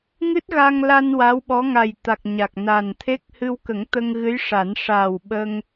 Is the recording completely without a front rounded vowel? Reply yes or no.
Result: yes